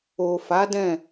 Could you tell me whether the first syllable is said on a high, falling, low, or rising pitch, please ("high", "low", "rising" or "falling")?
low